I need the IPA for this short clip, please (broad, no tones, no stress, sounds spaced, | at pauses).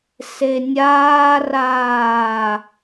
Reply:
s e nʲ aː r aː